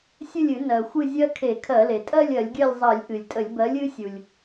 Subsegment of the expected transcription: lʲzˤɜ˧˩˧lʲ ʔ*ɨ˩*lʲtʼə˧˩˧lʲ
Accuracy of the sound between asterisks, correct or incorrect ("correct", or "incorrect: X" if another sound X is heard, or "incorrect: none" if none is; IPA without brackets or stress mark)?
correct